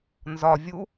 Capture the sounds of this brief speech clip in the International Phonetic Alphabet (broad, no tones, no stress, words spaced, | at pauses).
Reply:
nzɒ vʲu